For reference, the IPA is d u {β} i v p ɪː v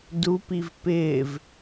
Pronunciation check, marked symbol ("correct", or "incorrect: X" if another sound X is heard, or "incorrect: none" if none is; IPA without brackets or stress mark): incorrect: p